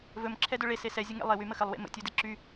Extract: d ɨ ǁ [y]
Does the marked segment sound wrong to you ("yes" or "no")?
no